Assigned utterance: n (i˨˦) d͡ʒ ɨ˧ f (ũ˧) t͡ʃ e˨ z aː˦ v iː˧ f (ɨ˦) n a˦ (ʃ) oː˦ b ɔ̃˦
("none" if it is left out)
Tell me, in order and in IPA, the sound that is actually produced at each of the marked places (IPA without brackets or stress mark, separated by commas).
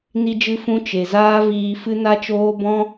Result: i˧, ũ˧, ɨ˦, t͡ʃ